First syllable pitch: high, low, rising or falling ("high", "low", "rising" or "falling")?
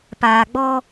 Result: low